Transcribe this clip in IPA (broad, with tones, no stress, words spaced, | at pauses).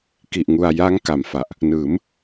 ki˨˩ʔŋu˨˩a̯ ja˦˥ŋka˩˦mfa˨˩ʔ | nɯː˩˦m